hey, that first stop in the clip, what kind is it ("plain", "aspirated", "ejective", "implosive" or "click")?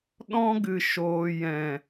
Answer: implosive